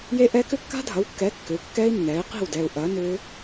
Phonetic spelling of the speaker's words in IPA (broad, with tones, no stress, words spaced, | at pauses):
je˦˥ʔɛ˦˥ kʏ˦˥kːa̤˦˥dʱɐ˩˥wkːɛ˩˥ kːʏ˩˥u̯kːɛː˦˥i̯nːɛː˩˥i̯qi̤˥˩w dɛː˨u̯ʔɐː˩˥ nʏː˦˥